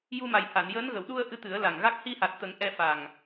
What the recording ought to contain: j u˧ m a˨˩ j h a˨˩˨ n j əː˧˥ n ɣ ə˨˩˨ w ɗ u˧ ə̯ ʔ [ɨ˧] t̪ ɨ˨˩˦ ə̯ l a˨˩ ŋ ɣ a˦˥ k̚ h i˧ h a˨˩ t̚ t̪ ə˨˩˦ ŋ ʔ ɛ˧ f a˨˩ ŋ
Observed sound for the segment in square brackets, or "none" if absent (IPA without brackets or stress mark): ɨ˧